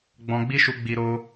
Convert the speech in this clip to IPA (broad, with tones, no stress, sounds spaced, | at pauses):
ɡ͡b ɔ̃˧ ɡ͡b i˦ ʃ u˧ ɡ͡b i˧ ɾ o˧